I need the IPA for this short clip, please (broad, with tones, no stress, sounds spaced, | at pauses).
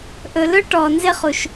ʔ ɵ˨ l ɵ˦ ʈ ɔ˨ n z ɪ˦ χ u˨ ʃ